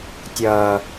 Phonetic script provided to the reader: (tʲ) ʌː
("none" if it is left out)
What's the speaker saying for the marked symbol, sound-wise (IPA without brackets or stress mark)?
tʲ